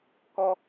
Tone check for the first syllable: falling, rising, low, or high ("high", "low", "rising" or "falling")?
high